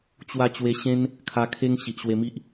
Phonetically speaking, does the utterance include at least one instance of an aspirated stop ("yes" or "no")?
yes